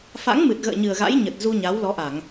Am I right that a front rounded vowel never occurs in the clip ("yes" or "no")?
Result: yes